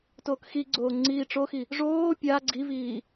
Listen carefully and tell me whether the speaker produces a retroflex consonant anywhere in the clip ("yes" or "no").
yes